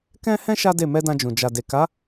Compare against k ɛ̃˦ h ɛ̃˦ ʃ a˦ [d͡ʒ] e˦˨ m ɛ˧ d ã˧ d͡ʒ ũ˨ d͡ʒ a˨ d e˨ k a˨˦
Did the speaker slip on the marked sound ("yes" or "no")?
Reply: yes